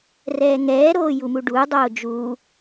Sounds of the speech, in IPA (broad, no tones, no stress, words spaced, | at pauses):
rɛːŋɛːɾoː jumuɖuːdˤoː d͡ʒuː